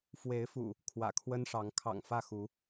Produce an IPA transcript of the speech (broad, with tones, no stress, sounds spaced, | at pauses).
f w e˨˦ ɪ̯ f ṵ˨˩ | kʰ w ä̰˨˩ kʰ w ə˦ n ʂ ɑ˨˦ ŋ kʰ ɑ̰˨˩ ŋ f ä˥˨ x u˨˦